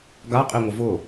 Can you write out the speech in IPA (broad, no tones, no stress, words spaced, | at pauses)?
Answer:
ɡaqʼi ŋʷəvʊ